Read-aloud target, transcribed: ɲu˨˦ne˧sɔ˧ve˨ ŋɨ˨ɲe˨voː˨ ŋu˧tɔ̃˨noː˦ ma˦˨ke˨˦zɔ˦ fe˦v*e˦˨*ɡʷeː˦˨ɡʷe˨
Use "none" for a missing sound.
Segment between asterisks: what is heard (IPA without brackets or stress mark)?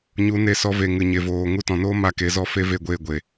e˦˨